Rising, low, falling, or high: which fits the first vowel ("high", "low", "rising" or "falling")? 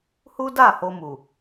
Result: high